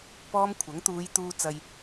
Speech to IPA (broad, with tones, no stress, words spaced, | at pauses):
pɔː˥mkʷʰɐ˨˥ŋ t̪uː˨˧jt̪uː˧ t͡sɐ˧j